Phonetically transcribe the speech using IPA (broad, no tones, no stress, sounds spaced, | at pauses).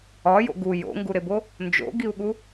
ɒ j o̰ ɡ u j o̰ ŋ ɡ u ɾ e b o | n d͡ʒ o̰ ɡ i u̯ ɠ u